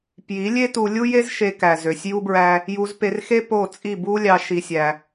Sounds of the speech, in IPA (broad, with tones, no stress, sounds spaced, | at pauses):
p j i˨˦ lʲ e˦ t u˧ lʲ u˦ j e˦ z ʃ e˧ k æ˨ z ø˨ sʲ j u˦ b ɹ æ˦ | j u˧ z p e˧ r x e˦ p o˦˨ t͡sʼ i˦˨ b u˦ lʲ ɑ˧ ʃ i˦ sʲ æ˦